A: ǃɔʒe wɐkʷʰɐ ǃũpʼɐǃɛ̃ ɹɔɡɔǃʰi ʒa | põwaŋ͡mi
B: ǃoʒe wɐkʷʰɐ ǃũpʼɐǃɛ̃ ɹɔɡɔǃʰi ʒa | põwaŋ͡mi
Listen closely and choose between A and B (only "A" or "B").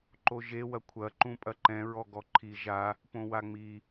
B